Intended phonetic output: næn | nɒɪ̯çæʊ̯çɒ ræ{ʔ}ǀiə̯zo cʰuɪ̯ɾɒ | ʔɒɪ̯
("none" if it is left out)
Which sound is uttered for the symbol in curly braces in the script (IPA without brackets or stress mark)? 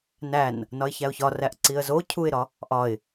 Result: ʔ